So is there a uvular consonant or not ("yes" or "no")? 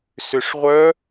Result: yes